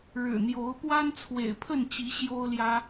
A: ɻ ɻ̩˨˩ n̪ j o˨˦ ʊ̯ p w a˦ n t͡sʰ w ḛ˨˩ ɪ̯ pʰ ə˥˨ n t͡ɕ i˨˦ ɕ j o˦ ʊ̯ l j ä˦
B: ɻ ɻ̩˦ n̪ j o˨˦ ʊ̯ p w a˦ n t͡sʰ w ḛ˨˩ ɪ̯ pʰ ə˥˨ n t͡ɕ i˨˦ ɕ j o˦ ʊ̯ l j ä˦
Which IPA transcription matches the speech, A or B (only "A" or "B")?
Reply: A